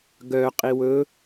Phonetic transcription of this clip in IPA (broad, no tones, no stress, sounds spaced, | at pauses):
ɡ œ qʼ i w ɵ